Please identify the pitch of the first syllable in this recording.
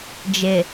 low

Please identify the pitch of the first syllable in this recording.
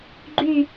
falling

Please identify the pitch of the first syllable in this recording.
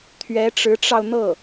rising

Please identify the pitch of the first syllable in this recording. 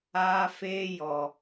high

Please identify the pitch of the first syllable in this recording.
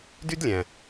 high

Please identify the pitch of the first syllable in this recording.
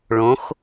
rising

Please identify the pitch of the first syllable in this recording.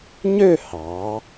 falling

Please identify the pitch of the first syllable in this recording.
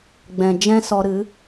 low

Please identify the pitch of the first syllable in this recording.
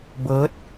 rising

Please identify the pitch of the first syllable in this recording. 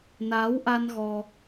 rising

